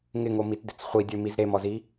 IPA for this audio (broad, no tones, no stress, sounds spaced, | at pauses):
ŋ ɪ ŋ o m i t d ɪ t͡s χʷ i dʲ ø m i z ɾ e m ɔ z i